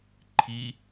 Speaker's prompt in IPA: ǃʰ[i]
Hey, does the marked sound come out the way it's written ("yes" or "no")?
yes